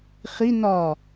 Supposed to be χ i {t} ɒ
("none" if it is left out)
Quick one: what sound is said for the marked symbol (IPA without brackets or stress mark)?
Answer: n